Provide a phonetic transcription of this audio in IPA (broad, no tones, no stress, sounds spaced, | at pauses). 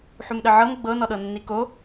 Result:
ħ u m ɗ ə ʕ ɤ m ɡ͡b ɤ n ɔ ɗ ɤ nː i k o